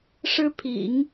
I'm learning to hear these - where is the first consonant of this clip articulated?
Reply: retroflex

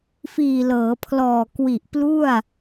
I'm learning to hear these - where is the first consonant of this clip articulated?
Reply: lips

